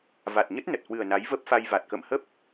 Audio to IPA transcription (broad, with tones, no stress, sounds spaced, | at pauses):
v a˨˩ t̚ ɲ ə˦˥ t̚ n ə˨˩ t̚ h w ɨ˨˩ ə̯ n a˨˦ j v ə˦˥ p̚ f a˧ j v a˨˩ t̚ k ə̰˧˨ m h ə˦˥ p̚